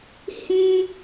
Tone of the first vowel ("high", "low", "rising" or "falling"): high